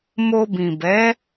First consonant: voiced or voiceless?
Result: voiced